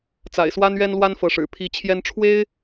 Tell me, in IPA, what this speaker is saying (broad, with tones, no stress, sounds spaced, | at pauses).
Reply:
t͡s a̰˨˩ ɪ̯ s w a˥ n ɥ ɛ˥ n l w a˥ n f ɤ˧˥ ʂ ɻ̩˨˩ pʰ i˧˥ t͡ɕʰ j ɛ˥ n ʈ͡ʂʰ w e˥ ɪ̯